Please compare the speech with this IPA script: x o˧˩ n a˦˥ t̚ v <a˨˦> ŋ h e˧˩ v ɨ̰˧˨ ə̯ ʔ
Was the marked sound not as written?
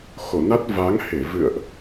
no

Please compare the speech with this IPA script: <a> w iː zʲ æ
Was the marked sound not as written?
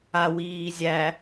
no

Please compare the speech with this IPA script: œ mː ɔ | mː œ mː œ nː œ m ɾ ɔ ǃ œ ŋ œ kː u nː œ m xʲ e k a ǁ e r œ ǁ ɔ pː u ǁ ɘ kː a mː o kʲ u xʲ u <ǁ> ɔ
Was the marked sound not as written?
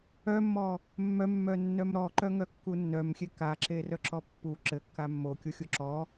no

